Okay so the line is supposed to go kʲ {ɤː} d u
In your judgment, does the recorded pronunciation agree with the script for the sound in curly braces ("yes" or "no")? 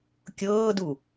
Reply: yes